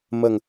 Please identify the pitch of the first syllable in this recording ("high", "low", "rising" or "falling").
low